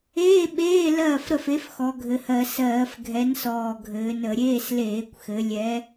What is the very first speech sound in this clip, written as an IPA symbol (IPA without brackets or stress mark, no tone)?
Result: eː